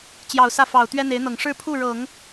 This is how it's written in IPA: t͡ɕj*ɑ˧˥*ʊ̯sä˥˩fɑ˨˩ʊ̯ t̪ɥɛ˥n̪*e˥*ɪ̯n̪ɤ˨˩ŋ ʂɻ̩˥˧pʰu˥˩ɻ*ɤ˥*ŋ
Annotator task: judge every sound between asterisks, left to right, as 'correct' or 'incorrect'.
incorrect, incorrect, incorrect

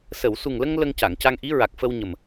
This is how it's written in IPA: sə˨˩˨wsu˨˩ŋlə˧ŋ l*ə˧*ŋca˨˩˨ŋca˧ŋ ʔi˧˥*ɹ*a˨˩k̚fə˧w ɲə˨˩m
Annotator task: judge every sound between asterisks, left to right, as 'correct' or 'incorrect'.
correct, correct

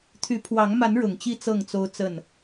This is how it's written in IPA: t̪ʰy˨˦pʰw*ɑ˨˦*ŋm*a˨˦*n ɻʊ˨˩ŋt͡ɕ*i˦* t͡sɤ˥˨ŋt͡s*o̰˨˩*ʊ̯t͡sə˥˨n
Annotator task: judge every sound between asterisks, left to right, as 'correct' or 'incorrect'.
correct, correct, incorrect, incorrect

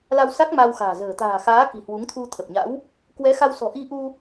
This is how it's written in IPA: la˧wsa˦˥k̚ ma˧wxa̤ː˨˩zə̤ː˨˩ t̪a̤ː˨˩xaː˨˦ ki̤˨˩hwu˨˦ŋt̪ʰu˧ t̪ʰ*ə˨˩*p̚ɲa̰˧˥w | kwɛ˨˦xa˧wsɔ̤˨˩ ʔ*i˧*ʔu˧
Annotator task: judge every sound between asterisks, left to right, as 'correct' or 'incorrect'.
correct, correct

